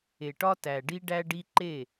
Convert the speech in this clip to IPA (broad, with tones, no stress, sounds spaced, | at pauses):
e˨ ʈ ɒ˦ t æ˨ ɖ i˦ ɖ æ˦ ɖ i˦ ǃ e˦˨